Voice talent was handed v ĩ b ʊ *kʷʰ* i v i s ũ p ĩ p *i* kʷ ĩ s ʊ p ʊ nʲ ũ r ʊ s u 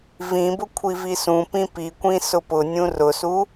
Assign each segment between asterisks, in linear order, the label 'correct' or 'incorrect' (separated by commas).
correct, correct